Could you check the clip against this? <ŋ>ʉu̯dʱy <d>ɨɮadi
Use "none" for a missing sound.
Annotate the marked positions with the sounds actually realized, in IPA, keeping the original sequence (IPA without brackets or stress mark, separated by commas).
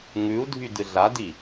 ŋ, d